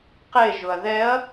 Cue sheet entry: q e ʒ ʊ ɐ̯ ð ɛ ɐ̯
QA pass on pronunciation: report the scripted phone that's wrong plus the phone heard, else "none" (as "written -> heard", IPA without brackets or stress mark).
none